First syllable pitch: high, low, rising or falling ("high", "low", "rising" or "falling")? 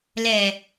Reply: low